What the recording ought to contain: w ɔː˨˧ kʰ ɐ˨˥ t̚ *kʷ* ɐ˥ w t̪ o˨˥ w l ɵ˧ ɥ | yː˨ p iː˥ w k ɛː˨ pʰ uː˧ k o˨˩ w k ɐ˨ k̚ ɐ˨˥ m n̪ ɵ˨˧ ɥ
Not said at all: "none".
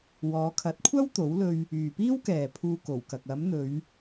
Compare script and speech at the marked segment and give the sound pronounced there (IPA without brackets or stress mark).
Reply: kʷʰ